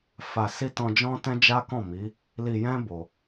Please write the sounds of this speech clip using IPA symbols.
f a˨ s i˧ t ɔ̃˧ d͡ʒ ɔ̃˦ t ɛ̃˦ d͡ʒ a˦ k ɔ̃˦˨ m i˨˦ | l i˨ j ɛ̃˧ b o˧

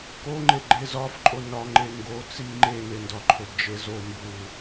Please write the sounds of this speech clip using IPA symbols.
k o ŋ͡ǃ e ɡ͡ǃ e z ɒ f ǃʼ o n ɒ ŋ͡ǃ e ŋ ɡ o t͡s i ŋ͡ǃ e n e n d ɒ ǃʰ o d d͡ʒ e z o m b u

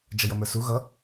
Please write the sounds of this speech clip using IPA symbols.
d͡ʒ ʌ j ʌ m ə˞ s u ɣ ʌ

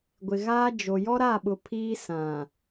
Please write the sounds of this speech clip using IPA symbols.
ɡʷ ɪ˨ ɣ aː˦ d͡ʒ o˨ j ɔ˦ ɾ a˦˨ ɓ ʊ˨ pʰ iː˦ s ã˨

